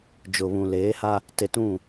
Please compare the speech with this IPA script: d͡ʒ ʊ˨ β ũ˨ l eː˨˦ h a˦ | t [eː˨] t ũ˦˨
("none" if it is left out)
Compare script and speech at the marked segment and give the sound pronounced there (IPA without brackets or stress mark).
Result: e˨